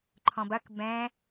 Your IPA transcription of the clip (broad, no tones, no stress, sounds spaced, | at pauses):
ǃʰ ɔ̃ b ɐ k b ɛ̃